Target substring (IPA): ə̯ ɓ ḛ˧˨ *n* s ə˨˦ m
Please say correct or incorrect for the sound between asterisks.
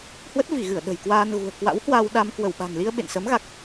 correct